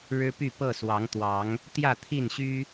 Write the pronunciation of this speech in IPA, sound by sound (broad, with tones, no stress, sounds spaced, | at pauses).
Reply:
ɻ ɻ̩˦ p y˥˨ p ɤ˥˨ s w ɑ˨˦ ŋ t̪ w ɑ˨˦ ŋ | t̪ j ä˥˨ t̪ʰ i˥˨ n ɕ y˦